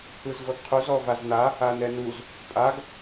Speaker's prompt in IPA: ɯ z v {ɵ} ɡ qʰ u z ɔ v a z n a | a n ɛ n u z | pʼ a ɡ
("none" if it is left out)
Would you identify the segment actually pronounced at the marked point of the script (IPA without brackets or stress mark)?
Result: ɤ